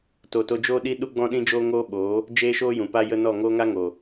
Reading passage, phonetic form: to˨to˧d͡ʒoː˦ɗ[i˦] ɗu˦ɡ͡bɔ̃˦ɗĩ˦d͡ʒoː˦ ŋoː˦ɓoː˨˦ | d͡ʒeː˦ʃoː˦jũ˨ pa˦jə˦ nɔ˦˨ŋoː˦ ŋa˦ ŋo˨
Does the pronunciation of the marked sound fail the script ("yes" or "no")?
no